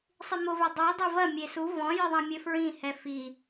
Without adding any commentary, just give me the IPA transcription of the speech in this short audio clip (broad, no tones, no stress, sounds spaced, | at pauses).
sˤ i m o v e dˤ u j dˤ i v ɐ mʲ e s u v ɔ̃ j ɨ ðˤ ɐ̃ mʲ ɘ f ɹ ĩ h ɛ f i